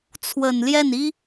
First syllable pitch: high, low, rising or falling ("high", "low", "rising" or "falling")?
low